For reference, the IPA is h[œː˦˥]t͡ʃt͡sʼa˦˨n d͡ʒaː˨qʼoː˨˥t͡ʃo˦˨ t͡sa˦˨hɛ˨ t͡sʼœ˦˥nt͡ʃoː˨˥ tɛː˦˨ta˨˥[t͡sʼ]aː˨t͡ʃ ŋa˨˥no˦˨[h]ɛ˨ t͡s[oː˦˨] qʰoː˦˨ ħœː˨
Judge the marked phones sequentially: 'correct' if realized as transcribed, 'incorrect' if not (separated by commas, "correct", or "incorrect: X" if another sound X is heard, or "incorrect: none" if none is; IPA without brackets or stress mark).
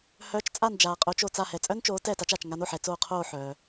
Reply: incorrect: œː˨˥, incorrect: t͡ʃ, incorrect: ħ, correct